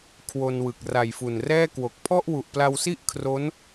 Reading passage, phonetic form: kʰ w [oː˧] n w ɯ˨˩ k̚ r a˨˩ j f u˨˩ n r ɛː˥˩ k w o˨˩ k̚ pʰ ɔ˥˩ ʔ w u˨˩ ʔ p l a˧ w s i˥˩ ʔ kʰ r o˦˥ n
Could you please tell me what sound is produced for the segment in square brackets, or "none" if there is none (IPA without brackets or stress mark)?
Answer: o˧